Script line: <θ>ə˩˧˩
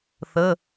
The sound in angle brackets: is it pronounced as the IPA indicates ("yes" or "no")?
yes